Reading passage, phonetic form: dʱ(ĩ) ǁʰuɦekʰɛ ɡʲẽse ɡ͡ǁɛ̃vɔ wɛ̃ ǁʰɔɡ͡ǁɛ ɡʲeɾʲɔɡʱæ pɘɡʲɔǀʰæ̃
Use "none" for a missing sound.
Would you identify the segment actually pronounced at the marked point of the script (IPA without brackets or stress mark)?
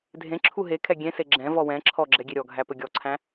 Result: ẽ